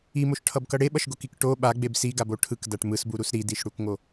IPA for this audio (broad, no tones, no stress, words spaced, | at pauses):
imoʃʈʰʌbkʌ ɽeɓʌʃɡokik ʈo ɓaɡ͡beb siɡabo ʈʰɯkdaʈ mɯsbuɾus ɾidiʃɽukŋo